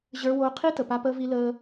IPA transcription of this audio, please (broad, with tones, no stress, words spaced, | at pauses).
ʑə˞˧woː˧ qʰi˦tə˨ pa˦pəː˦vi˦ ləː˦